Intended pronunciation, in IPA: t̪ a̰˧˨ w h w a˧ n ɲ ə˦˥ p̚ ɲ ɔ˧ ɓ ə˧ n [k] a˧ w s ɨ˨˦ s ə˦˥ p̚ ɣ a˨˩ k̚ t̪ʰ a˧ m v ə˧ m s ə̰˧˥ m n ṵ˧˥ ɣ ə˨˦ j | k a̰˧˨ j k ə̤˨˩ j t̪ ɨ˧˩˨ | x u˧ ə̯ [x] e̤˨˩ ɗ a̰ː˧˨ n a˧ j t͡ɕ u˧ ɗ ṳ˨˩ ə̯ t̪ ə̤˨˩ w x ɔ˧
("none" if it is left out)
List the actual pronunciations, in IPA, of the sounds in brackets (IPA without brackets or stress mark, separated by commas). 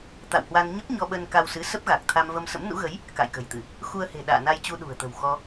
k, h